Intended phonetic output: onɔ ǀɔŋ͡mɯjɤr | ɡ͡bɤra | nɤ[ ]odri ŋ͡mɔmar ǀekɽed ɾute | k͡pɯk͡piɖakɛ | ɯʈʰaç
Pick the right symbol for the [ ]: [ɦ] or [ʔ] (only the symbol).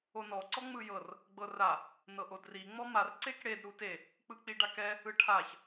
ʔ